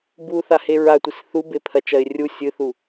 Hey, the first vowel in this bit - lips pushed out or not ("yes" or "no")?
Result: yes